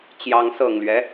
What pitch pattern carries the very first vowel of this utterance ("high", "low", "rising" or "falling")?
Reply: rising